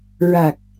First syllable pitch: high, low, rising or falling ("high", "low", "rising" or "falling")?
low